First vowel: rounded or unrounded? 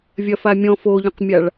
unrounded